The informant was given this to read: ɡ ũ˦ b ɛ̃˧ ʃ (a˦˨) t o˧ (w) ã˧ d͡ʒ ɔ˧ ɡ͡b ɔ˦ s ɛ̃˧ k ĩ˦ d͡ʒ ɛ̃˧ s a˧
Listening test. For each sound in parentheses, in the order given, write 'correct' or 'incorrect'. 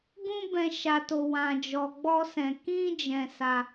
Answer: incorrect: a˧, correct

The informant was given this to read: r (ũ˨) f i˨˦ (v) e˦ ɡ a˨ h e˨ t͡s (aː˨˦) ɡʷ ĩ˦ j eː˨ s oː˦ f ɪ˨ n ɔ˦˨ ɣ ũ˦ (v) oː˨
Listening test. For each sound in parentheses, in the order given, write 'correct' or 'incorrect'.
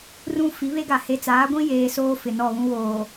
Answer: incorrect: ũ˦, incorrect: β, correct, incorrect: w

